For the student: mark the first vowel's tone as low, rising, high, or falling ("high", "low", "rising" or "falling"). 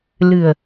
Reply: low